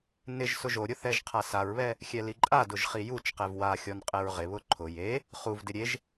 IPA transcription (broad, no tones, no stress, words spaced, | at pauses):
nɪʒ sʊʒoɾʲʊ θɛʒqʰasaɹβɛ | xʲɛliǃʼadʊʒ χijut͡ʃqɛv waxʲɔn qʼɛɹʁɪβʊ ǃʰʊ je | χuvdɪ ɾʲeʒ